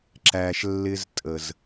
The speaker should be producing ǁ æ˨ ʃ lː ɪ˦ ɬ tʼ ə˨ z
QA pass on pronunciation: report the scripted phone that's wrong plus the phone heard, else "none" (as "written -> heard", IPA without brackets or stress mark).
ɬ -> z